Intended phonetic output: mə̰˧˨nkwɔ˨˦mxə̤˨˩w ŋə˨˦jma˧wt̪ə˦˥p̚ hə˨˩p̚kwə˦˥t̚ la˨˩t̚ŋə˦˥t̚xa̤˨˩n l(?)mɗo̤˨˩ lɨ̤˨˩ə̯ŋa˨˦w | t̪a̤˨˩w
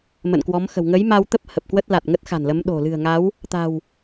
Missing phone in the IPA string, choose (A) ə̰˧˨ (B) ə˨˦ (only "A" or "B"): B